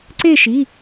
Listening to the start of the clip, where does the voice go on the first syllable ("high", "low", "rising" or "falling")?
falling